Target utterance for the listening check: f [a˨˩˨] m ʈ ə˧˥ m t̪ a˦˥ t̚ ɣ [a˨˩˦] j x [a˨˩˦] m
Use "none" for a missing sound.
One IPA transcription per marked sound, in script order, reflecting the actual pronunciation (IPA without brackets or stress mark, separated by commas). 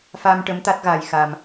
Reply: a˧, a˧, a˧